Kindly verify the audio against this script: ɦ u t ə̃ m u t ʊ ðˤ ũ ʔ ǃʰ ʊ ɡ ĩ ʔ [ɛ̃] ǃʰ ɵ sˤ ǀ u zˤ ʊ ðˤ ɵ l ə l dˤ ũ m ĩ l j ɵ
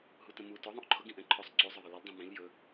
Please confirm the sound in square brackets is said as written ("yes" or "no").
yes